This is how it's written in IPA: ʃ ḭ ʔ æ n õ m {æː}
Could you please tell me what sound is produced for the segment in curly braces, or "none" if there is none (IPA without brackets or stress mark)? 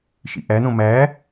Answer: æː